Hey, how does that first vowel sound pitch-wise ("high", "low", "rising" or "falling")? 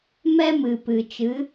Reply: high